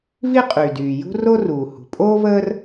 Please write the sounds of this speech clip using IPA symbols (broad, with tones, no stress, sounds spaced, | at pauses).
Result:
v i˥ qʼ y˩ d yː˩ j ṳ˥ r o˥ r uː˩ h ṳ˩ pʼ oː˥ v əː˥ r